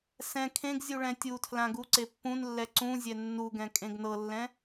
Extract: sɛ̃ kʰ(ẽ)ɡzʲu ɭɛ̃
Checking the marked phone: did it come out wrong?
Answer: no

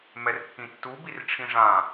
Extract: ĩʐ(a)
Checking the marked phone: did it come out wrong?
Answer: yes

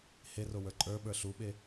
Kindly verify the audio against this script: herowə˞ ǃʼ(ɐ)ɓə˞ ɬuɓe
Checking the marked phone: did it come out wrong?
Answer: yes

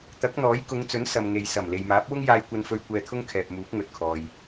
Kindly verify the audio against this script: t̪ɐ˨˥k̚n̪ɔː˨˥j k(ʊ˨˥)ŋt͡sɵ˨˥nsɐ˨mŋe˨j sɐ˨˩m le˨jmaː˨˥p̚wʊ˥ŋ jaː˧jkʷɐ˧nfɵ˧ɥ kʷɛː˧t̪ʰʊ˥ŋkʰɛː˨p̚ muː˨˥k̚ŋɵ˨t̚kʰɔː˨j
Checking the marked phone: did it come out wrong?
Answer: yes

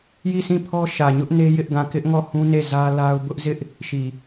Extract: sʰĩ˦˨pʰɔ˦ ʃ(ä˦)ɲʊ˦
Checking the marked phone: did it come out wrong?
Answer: yes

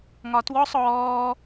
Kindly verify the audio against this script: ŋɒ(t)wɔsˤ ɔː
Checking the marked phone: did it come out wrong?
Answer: no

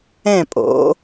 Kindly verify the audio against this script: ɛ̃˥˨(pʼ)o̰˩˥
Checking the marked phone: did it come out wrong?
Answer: no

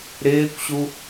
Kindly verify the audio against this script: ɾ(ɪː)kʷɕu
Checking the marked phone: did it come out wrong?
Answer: no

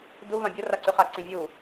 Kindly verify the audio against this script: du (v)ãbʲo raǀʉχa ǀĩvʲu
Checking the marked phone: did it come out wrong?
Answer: no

